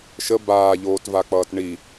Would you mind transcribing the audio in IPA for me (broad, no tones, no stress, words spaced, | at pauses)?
ʃə baːʎoːtvak͡pʌːt ɳi